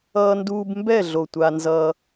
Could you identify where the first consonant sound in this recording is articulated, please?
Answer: alveolar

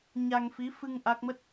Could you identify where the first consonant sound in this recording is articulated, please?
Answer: palatal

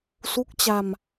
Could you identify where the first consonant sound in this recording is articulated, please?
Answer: alveolar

